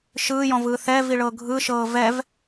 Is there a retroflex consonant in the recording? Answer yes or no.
yes